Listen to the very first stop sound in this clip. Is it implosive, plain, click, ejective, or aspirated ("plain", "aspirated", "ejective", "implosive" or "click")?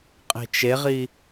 ejective